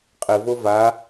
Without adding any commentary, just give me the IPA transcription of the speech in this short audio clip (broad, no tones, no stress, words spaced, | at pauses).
qʼɪvo va